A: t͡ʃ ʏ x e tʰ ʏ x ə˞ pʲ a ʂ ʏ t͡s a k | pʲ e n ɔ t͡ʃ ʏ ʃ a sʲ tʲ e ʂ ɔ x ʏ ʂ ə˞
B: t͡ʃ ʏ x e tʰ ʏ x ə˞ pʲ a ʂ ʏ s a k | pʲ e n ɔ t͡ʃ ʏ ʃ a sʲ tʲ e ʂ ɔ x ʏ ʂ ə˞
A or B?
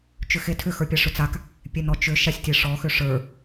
A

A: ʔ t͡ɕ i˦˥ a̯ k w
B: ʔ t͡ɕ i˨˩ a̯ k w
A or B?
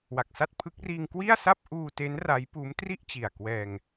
B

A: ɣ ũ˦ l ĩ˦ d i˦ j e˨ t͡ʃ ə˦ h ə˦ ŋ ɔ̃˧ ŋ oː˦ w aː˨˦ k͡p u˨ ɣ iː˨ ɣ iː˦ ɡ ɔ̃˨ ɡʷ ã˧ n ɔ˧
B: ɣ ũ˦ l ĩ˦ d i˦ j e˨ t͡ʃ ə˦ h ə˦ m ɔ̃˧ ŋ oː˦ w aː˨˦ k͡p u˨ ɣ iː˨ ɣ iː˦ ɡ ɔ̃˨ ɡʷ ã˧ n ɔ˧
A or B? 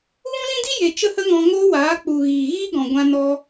A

